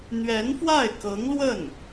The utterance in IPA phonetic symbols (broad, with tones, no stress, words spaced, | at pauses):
n̪ɥɛ˧˥nfwa˥˩ɪ̯kɤ˧˥ŋlwə˥˩n